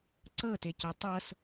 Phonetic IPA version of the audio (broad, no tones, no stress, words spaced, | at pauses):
ǀɤteco tˤɤs